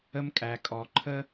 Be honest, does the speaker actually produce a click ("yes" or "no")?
yes